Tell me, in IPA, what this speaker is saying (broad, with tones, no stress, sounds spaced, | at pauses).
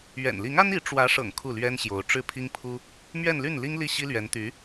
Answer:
ɥ ɛ̰˨˩ n l i˧˥ ŋ a˥ n i˧˥ ʈ͡ʂ w ä˧˥ ʂ ɤ̰˨˩ ŋ kʰ u˥˩ l ɥ ɛ˥ n ɕ j o˧˥ ʊ̯ ʈ͡ʂ ɻ̩˥˩ pʰ i˥ ŋ pʰ u˥ | m ɥ ɛ˥˧ n l y˥˩ n l i˥ ŋ l i˥˩ ɕ i˥ l ɥ ɛ˧˥ n t̪ y˧˥